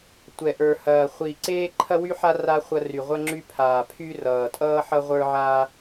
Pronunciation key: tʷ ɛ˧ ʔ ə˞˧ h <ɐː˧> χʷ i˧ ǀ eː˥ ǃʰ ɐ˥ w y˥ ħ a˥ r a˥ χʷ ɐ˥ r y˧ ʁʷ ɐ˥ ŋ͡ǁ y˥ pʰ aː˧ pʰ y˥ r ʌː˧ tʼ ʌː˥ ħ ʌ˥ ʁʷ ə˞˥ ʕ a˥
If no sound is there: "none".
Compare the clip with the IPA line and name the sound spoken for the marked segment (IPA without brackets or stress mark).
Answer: ɐː˧